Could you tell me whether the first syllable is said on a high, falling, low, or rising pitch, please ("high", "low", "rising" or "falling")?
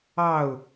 falling